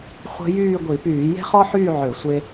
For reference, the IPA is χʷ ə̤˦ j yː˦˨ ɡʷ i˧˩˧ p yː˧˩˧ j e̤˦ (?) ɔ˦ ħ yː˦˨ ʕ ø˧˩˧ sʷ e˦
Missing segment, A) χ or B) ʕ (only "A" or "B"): A